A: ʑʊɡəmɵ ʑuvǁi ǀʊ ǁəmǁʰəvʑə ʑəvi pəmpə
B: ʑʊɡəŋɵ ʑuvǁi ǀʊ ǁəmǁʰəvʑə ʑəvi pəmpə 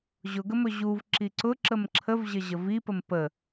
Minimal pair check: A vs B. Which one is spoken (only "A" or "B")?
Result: A